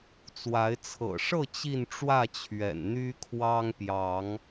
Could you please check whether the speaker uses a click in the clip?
no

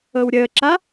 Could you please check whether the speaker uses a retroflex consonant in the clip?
no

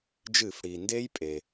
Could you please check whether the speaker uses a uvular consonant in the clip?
no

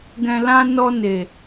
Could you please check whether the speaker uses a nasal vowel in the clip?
yes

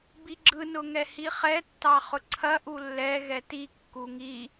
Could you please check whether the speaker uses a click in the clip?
yes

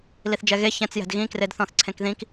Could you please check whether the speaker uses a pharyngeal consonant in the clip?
no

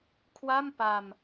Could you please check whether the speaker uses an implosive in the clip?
no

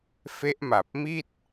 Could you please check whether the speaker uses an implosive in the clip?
no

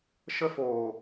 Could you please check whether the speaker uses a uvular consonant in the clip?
no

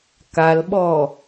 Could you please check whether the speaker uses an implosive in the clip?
yes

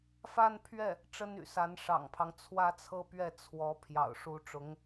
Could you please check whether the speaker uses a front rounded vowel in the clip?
yes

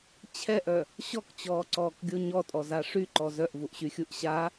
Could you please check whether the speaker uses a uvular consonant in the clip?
no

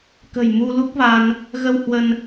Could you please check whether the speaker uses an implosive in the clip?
no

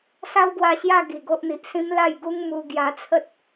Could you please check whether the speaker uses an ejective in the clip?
no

